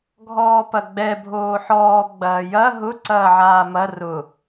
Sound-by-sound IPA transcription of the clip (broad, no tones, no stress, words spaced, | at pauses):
ɡʱɔːpɐɡ͡bɛ bʱoːħɔː ɡ͡bɐːjɐ ɦʊ ǀɐːʕaːmɐ rʊ